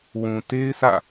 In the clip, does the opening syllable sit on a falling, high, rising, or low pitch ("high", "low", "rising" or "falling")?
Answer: low